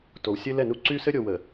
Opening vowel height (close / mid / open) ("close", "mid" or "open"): mid